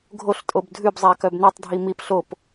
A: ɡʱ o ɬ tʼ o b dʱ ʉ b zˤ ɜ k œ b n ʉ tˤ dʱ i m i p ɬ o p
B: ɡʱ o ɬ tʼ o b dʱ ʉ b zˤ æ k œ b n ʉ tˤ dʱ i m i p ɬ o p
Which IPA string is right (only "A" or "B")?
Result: B